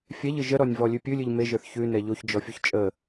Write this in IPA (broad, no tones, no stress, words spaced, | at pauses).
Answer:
fʲɛʎɨ ʒəɾɔnʲvɔ lʲʉpʲʉlʲɨʎ meʒə˞θ çʉ nɛʎoç d͡ʒɔfʲoçt͡ʃʼə